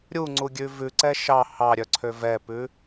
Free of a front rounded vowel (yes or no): no